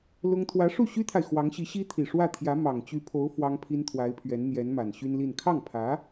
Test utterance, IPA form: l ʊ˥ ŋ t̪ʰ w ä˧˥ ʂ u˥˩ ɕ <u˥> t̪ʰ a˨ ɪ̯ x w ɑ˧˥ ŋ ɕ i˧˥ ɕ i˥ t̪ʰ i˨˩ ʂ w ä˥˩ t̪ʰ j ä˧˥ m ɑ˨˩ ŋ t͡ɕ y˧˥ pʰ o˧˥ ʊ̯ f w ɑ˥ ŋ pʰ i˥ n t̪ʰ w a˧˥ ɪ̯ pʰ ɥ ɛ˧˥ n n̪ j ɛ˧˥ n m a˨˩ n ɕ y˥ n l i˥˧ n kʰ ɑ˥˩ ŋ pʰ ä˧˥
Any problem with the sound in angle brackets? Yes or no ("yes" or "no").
yes